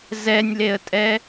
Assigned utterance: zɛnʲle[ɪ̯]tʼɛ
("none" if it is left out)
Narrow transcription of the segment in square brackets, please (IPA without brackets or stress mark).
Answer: ə̯